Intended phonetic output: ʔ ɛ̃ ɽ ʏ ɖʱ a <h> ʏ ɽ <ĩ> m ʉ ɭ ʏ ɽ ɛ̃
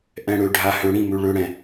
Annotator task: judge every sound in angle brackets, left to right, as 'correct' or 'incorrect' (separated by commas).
correct, correct